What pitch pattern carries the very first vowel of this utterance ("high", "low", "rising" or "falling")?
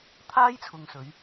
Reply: high